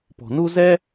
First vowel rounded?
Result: yes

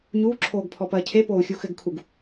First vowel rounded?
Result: yes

